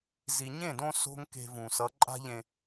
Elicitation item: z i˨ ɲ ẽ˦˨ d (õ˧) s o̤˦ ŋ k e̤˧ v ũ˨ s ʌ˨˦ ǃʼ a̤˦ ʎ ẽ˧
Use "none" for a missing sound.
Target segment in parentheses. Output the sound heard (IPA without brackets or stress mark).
õ˧